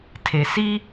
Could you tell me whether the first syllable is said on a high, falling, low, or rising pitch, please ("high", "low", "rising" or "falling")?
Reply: low